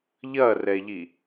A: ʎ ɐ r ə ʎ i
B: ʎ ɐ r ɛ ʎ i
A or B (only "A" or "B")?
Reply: B